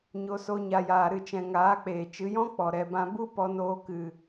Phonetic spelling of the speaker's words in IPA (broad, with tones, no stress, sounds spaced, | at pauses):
ɲ o˧ s o˧ ɲ a˨ j aː˨ ɾ ɨ˨ t͡ʃ ɛ̃˨ ŋ aː˨˦ k͡p eː˨ t͡ʃ ɨ˨˦ j ɔ̃˦ k͡p ɔ˨ ɾ ɛ˨ b ã˧ b u˦ p ɔ˧ n oː˧ k ɨ˨